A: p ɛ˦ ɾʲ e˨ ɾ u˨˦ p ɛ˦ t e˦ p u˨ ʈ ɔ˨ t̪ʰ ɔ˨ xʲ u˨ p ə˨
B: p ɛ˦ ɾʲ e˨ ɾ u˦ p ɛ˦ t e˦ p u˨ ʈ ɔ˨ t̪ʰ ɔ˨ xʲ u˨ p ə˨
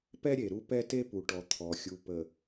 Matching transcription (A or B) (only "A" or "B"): B